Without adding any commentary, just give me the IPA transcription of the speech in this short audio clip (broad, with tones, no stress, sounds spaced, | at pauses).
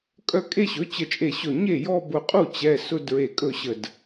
kʼ œ˥˧ kʼ e˥˧ ɕ ɵ˩˥ t͡ɕ ə˧˩ t͡ʃʼ e˧˩ ɕ ɵ˧˩ ɲ e˥˩ j ɔ˥˧ b ʊ˧˩ qʼ u˥˩ t͡ɕ ɛ˩˧˩ s ʊ˥˧ d ɹ e˧˩ kʼ ɵ˥˩ ɕ ə˧˩ d